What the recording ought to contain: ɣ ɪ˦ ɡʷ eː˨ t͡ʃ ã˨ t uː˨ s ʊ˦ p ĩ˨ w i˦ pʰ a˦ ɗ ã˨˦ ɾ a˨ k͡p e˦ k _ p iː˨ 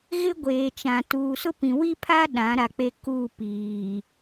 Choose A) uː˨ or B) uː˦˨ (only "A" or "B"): B